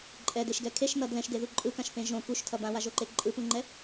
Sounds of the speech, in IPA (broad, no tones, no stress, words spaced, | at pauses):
ǃʼɛdeʃɡɛ kʰeʃnʌ dlɛ̃ʃdeðu ǃʼɯkãʃpẽ ʒõ kuʃtʰʌ bãwaʒoǃe ǃʼɯpũŋ͡ǃɛ